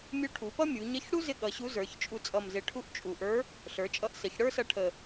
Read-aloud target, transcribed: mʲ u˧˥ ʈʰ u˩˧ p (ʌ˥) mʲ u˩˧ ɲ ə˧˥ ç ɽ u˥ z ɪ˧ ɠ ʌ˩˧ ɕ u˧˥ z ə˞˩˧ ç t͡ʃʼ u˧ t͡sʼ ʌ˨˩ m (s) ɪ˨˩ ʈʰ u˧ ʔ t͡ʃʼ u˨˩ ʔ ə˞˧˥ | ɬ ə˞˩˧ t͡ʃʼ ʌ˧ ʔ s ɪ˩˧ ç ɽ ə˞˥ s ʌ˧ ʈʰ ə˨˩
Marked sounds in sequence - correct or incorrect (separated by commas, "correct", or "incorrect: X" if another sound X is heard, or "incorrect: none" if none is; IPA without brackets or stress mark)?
correct, incorrect: z